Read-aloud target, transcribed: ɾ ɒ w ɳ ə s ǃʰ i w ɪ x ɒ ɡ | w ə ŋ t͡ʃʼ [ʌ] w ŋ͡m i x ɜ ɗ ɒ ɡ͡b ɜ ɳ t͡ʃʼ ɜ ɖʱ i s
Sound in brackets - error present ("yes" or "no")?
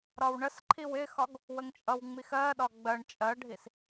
no